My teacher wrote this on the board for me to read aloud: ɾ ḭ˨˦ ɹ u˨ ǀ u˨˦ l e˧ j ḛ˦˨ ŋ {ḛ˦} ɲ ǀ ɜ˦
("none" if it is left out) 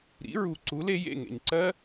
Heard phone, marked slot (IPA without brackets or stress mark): ḛ˨